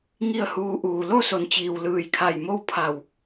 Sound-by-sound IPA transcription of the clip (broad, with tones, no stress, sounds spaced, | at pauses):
ŋ i˥˨ ə̯ h uː˧ ʔ uː˩ l o˥˨ s o˩˧ n t͡ɕ iː˩ w l ɯː˧˩ j kʰ a˧˩ j m o˥˨ w pʰ a˧˩ w